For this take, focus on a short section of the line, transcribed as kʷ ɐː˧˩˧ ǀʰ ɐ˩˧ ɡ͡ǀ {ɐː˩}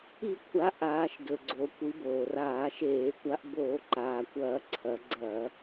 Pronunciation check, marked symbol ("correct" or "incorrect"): incorrect